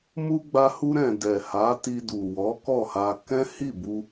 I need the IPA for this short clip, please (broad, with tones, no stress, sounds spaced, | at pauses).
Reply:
m u˧ ɡ͡b a˧ h u˧ ɾ ɛ̃˨ d ɛ˨ h a˨˦ t i˧ d u˨ w ɔ˨˦ k ɔ˦˨ h a˧ k ɛ̃˦ h i˦˨ b u˧